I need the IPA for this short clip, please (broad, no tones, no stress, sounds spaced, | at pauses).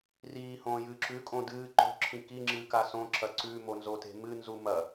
r iː h õː j ɨː ǁ ʉ kʼ õ d ɨː ǃ o̤ ǁʰ ĩ k i ŋ͡ǁ ɨː k a s õ ǁ ɐ ǀ ʉ m o n z o t e̤ m ɨ n z u m ɐ